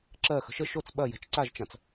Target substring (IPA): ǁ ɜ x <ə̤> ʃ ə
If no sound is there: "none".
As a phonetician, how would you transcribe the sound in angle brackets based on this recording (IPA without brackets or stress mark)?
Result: ə̤